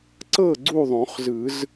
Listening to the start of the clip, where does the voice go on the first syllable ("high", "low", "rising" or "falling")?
falling